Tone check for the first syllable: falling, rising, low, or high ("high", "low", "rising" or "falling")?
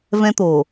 high